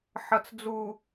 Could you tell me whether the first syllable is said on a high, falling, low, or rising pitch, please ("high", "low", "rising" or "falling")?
low